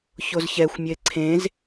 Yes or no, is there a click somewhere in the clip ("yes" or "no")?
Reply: yes